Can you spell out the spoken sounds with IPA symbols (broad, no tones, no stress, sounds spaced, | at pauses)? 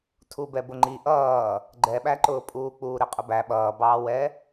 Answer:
tʰ u b ɛ b ʊ ŋ͡ǃ i ʔ ʌː | ɡ͡ǃ ɛ ɓ æ ǃ ʊː pʼ uː k͡p uː ɾ ɪ qʼ ʊ b æ ɓ ʌː b ɑː w ɛ